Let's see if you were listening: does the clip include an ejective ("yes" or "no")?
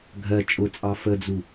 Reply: yes